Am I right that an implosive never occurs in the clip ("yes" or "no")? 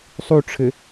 yes